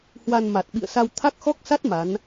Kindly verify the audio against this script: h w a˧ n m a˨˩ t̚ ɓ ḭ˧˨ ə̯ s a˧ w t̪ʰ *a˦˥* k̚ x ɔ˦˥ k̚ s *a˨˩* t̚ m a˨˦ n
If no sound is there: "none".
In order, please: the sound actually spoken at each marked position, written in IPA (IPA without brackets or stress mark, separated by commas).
a˦˥, a˦˥